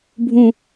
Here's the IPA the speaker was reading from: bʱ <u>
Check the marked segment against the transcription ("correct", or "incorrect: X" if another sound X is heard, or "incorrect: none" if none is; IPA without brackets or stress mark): incorrect: ũ